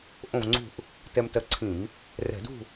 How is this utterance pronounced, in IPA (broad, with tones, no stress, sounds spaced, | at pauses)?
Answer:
ʔ õ˥˨ v ŋ͡ǀ ṳ˥˨ ʔ | t ɛ˧ m t ɜ˧ ǀʰ ĩ˧˩˧ m | r ɛ̤˧˩˧ d ṳ˥˨